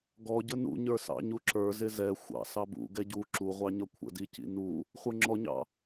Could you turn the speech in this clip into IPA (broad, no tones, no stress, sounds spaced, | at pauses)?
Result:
ɡ ɔ ɟ ə n ṵ ɲ ə˞ s ɑ̰ ɲ u ǁ ə˞ z ɪ z ɛ xʷ ɑ̰ s ɑ b ṵ ɡ ɛ ɟ u ǁ u ʁʷ ɑ ɲ ʌ kʷʰ ə̰ d i c ḭ n u | χʷ ə˞ ŋ͡ǁ ɔ ɲ ɑ̰